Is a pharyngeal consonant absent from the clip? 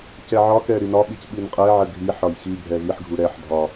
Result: no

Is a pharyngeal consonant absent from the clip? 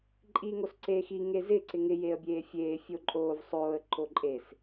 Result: yes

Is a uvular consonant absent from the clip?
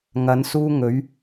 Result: yes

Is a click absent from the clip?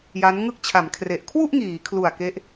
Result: yes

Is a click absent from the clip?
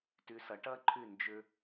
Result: no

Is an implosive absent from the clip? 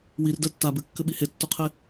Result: no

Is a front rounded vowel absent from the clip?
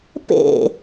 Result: yes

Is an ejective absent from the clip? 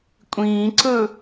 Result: no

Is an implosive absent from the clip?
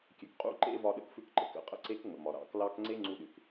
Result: no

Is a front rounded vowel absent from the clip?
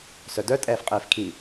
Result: no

